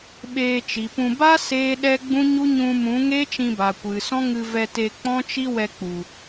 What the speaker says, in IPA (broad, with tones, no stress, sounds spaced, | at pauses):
ɓ eː˧ t͡ʃ i˨ p ũ˧ b a˦ s eː˦ ɗ ɛ˦ ɡ͡b ũ˦ ɲ u˦ ɲ ũ˧ m ũ˨˦ ŋ eː˦ t͡ʃ ĩ˧ b a˨ kʷ ɨ˨ s ɔ̃˦ ŋ ɨ˧ v ɛ˧ t e˧ k͡p ɔ̃˦ t͡ʃ i˦ w ɛ˧ k͡p u˨